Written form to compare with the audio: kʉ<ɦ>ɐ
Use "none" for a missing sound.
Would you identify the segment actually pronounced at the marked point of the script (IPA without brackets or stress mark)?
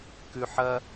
ħ